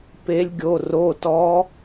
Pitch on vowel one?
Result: rising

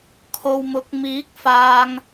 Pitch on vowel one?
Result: low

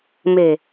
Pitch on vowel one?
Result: low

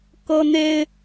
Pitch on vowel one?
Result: high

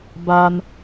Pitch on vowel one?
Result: high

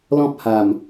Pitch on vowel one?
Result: high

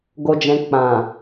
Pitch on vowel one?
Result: low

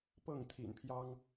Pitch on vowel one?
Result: falling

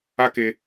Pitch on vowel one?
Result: high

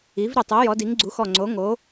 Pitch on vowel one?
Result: rising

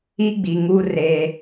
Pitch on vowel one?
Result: high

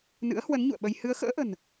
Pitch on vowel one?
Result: rising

